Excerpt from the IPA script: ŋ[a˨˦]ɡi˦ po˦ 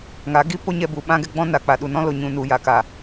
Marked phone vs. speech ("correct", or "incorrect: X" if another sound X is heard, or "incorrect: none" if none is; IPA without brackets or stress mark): correct